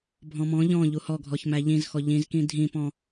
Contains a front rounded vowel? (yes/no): no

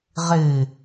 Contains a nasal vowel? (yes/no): no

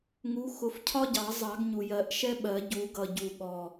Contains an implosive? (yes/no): yes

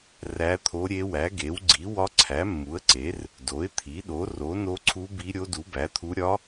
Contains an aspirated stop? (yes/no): yes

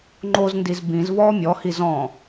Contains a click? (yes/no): yes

